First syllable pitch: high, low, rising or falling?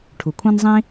low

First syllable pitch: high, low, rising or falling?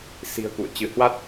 low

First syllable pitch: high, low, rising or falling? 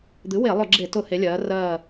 rising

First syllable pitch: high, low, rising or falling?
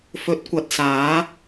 rising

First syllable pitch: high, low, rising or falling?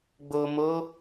low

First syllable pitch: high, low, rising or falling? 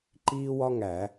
high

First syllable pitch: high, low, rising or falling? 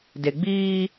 low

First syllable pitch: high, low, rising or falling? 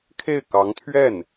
falling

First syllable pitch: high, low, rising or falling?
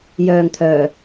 low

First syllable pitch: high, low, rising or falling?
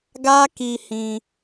high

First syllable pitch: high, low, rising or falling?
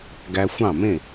low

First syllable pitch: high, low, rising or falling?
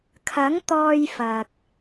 rising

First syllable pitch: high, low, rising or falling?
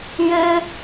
high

